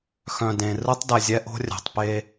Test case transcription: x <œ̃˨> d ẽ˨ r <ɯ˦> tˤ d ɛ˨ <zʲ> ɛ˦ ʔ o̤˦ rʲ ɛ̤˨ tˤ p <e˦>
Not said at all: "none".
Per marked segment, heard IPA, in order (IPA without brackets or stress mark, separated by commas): œ̃˨, ɯ˦, zʲ, e˦